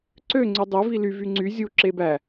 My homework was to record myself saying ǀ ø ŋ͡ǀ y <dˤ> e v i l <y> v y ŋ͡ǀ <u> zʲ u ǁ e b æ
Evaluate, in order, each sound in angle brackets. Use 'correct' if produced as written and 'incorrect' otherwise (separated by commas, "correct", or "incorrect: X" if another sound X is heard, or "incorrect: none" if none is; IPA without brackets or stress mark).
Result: correct, correct, incorrect: y